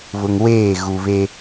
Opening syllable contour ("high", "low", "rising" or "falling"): low